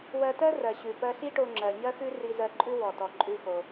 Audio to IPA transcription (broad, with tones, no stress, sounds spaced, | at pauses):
w ɜ˧ t ɜ˥ r ɜ˩ ɕ ʉ˩ p ɜ˧ ɬ i˥ ʈ o˧ ŋ͡ǁ ɜ˩ ɲ ɜ˥ x ʉ˥ r i˧ z ɜ˧ ǃʼ ʉ˥ w ɔ˩ t ɔ˩ ǃʼ ʉ˧ x o˩